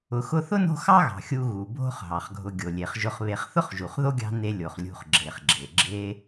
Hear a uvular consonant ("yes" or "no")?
yes